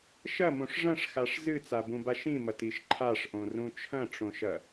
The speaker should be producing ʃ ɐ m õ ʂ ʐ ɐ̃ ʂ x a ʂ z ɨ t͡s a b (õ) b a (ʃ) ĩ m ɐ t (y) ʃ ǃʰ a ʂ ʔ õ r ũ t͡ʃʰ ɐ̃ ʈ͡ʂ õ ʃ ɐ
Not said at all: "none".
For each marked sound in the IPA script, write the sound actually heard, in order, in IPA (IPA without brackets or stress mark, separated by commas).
ũ, ʃ, i